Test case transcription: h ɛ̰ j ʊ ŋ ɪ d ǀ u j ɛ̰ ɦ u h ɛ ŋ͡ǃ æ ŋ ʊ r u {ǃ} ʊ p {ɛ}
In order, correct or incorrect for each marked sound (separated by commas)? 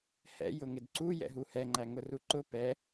correct, correct